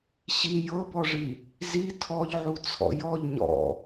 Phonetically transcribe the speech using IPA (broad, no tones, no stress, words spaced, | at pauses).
ɕi jɤbɔʐi | zi tʰɔʎʕut͡sʰɔ̰ jɔʎ ɲɔ̰